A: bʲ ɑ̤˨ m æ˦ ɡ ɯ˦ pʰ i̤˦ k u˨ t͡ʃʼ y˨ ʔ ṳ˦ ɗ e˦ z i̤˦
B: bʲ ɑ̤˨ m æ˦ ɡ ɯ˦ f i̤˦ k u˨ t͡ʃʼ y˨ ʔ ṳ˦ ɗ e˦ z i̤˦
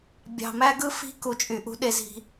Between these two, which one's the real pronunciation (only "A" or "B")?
B